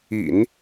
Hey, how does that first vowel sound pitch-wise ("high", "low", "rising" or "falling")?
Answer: low